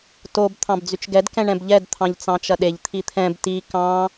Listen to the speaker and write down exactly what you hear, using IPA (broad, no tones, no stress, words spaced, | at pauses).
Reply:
tob t̪ʰɑ̃bd͡zyt͡ʃɡɛd kɛ̃ɳɛ̃bʎɛd t̪ʰɑ̃ʎt͡sɑ̃t͡ʃɐɗeʎ t̪ʰit̪ʰɛ̃b ti kɑ̃